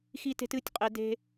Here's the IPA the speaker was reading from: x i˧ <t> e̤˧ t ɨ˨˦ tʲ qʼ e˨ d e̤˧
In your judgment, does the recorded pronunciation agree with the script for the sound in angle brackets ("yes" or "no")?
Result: yes